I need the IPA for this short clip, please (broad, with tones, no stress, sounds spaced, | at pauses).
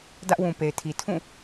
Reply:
d ä˦ ʔ w ũ˨ p e˨ ɪ̯ tʰ i˨ tʰ ũ˦˨